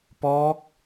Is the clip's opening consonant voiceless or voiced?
voiceless